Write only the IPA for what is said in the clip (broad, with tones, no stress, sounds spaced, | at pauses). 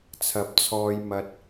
t͡sʰ ɐ˨˥ p̚ t͡sʰ ɔː˧ j m ɐ˧ t̚